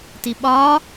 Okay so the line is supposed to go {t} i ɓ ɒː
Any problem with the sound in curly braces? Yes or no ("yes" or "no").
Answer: no